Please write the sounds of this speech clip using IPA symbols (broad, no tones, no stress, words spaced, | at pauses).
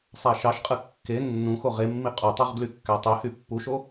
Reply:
sˤæʃɑʃqʼɯ kːe nːũxo ʁemːi qʼotˤoʁ ɡlykːætˤøhy pːuʃo